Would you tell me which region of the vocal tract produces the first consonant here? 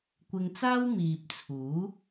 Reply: velum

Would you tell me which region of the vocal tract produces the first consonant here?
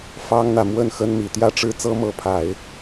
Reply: lips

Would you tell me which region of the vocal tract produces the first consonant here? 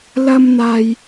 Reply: tongue tip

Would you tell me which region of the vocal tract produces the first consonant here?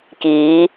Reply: velum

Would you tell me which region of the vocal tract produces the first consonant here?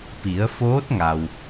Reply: lips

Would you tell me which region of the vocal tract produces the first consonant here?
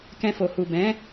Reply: velum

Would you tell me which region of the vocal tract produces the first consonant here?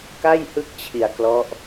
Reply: velum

